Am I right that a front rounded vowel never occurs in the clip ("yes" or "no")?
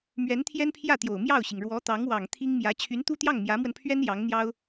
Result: no